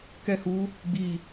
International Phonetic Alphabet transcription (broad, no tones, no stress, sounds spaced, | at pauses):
k ɛ h u | ɡ͡b i